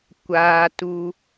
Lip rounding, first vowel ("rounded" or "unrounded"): unrounded